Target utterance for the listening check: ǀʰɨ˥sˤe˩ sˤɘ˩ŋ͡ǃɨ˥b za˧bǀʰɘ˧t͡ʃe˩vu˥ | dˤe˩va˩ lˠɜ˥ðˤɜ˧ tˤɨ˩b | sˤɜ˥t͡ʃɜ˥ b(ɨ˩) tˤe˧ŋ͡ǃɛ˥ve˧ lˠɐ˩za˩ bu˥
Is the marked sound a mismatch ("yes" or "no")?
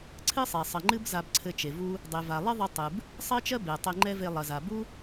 yes